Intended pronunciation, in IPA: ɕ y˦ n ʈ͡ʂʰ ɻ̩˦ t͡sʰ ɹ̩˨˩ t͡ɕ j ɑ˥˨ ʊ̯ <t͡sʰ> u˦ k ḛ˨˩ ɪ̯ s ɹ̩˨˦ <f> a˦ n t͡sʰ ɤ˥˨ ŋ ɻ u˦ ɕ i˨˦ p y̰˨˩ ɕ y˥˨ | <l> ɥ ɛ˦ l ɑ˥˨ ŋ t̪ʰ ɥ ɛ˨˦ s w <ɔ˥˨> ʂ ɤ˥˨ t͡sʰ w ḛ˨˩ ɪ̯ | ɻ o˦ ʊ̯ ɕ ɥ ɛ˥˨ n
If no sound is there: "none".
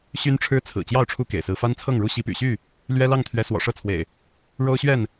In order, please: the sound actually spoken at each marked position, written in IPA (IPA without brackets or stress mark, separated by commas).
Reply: ʈ͡ʂʰ, f, l, ɔ̰˨˩